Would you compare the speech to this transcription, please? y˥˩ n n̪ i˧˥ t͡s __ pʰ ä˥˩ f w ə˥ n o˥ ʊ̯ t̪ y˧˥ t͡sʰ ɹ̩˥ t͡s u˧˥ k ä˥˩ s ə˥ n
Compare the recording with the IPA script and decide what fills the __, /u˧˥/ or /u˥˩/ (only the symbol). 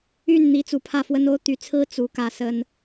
u˧˥